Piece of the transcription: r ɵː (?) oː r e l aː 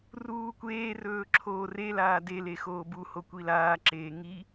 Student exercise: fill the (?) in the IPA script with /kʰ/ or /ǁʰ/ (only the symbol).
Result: ǁʰ